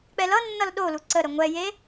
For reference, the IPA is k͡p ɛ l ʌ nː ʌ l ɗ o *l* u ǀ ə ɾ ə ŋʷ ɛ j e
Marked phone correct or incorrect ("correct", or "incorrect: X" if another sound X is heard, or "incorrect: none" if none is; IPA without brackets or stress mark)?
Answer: correct